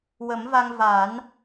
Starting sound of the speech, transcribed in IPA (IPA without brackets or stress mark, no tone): w